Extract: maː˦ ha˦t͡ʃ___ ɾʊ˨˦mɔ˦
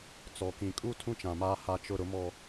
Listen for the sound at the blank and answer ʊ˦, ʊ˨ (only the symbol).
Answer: ʊ˦